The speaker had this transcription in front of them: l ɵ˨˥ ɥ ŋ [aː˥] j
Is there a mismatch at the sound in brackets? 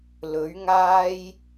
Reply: no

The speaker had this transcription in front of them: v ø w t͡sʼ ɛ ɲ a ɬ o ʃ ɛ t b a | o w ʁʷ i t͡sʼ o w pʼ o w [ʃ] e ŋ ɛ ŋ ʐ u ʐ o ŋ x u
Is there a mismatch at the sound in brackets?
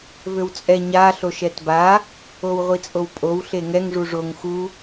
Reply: yes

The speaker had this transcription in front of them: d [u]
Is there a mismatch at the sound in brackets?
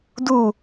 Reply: no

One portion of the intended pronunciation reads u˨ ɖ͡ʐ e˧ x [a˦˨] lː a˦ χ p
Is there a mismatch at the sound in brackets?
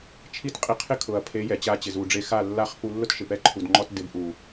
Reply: no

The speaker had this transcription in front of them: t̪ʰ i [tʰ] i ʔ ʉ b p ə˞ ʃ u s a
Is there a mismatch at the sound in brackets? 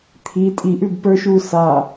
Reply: yes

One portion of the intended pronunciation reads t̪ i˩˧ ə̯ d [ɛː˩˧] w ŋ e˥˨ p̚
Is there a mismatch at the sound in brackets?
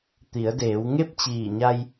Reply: yes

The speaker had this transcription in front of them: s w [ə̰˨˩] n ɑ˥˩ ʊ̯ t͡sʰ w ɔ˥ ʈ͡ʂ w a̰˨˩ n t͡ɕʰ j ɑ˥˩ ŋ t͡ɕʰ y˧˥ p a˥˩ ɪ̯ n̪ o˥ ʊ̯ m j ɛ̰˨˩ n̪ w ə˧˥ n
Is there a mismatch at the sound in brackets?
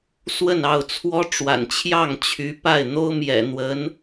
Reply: yes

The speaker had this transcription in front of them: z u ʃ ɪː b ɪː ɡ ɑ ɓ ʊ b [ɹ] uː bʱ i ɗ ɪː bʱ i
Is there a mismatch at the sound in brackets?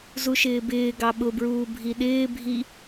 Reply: no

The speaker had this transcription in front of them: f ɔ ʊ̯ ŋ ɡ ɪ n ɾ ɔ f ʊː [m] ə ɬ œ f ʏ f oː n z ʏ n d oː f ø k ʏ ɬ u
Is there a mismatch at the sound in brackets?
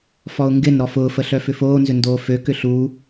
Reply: yes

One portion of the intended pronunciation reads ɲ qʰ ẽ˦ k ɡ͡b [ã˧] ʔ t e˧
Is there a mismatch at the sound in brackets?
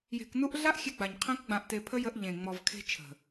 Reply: no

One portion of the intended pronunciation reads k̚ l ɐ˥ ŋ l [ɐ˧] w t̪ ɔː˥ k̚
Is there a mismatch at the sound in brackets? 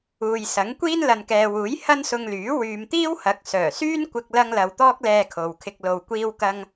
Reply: no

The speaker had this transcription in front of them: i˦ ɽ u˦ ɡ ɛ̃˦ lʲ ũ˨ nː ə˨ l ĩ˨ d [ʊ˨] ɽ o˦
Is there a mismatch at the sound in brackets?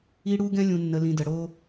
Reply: yes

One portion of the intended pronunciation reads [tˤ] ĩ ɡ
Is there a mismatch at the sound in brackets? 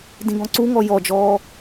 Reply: yes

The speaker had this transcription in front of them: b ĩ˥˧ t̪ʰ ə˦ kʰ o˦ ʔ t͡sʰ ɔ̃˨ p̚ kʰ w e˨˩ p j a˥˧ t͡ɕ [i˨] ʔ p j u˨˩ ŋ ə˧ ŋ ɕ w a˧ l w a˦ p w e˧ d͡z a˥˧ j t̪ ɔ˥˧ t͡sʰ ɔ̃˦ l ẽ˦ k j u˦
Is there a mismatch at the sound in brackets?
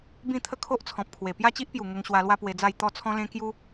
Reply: yes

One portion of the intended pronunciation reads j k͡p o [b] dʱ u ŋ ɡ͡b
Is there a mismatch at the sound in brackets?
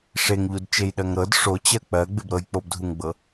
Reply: no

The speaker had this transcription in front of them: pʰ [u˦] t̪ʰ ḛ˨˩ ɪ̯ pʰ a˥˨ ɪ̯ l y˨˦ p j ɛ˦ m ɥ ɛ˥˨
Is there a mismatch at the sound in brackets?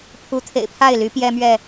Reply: yes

